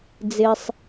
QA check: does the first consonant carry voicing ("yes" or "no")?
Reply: yes